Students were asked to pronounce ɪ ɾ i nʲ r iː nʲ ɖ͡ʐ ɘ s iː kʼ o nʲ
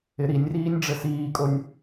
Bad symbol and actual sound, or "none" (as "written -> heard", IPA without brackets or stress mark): none